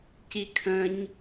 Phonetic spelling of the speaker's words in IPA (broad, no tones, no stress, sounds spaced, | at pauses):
c i kʰ ə̃ ɲ